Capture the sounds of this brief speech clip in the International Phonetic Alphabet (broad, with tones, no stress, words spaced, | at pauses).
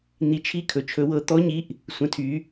n̪i˧t͡ʃʰi˦˥ kʰɵ˧t͡ʃʰɵ˦˥wɤ˦˥ t̪ɔ˦˥ɲi˦˥ʔ | sʷə̃˧˥˧tʰy˦˥